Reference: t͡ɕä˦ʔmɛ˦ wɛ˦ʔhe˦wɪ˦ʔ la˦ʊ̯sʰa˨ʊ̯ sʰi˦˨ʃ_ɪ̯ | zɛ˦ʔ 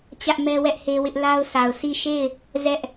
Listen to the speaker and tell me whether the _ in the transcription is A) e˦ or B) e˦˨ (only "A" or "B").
B